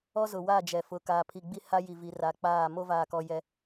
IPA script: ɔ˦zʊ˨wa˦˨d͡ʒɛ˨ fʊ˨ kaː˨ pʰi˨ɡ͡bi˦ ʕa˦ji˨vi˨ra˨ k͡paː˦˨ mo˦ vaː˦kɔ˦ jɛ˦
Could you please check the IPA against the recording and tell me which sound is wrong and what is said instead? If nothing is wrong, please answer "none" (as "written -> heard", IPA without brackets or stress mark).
ʕ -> h